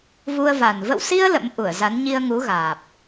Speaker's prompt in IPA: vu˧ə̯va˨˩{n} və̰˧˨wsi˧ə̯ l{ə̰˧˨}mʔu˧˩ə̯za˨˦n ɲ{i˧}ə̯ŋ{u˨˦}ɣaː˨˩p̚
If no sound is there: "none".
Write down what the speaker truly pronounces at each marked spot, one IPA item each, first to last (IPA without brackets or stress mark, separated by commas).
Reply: n, ə̰˧˥, i˧, u˨˦